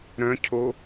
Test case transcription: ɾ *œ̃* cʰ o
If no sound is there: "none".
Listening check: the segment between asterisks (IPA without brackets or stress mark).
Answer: œ̃